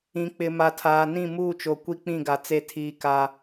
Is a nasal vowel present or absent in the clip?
present